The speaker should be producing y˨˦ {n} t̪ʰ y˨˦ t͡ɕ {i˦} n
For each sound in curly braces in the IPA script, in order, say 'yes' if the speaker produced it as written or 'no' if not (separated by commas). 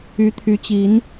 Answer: no, no